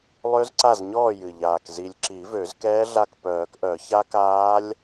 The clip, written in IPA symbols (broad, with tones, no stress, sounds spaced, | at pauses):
lˠ ø˦˥ z ǀ a˥˩ z ɲ ɔː˥˩ j ɨ˨˩ ʎ aː˨˩ k z i˨˩ lʲ ǁ i˨˩˦ v ø˨˩˦ z k ɛː˦˥ ɮ a˥˩ k p œː˨˩˦ k ʔ œ˨˩˦ ç a˦˥ k aː˦˥ lʲ